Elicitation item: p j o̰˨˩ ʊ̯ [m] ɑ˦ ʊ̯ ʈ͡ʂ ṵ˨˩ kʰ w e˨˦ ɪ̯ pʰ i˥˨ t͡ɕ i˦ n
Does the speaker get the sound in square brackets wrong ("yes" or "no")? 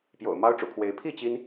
no